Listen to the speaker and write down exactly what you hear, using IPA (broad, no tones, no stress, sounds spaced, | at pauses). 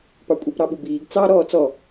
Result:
p ɑ kʷʼ ɛ p ɾ ɑ ɓ u b iː ɡ t͡s ɑ ɾ ɔː t͡s ɔ